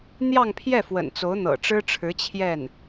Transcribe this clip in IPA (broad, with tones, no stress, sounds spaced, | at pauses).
n̪ j ɑ˥˧ ŋ pʰ j ɛ˥˩ f w ə̰˨˩ n t͡s o˧˥ ʊ̯ n̪ ɤ̰˨˩ ʈ͡ʂ ɻ̩˥ ʈ͡ʂʰ ɻ̩˧˥ t͡ɕʰ j ɛ˥˩ n